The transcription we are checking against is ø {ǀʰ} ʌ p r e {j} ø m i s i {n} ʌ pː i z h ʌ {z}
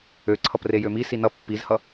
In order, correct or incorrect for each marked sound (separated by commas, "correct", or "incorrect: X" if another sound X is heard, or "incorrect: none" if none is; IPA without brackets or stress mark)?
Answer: correct, correct, correct, incorrect: none